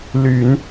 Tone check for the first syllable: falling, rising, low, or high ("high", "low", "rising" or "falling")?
low